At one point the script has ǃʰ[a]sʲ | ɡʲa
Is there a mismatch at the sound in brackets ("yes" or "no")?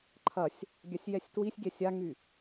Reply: yes